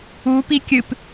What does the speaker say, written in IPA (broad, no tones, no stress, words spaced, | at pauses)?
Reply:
u pikʲɨp